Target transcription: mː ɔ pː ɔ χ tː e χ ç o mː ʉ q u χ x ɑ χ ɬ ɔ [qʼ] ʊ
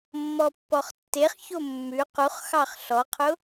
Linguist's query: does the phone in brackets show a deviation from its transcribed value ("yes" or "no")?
yes